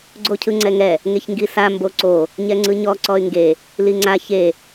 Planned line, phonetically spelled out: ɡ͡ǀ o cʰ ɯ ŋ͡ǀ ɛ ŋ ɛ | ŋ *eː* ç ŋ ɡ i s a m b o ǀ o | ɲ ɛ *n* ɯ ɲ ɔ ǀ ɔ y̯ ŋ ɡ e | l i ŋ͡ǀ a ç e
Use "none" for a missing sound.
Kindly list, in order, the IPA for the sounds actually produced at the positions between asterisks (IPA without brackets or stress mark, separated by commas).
e, ŋ͡ǀ